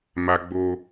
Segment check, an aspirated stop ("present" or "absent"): absent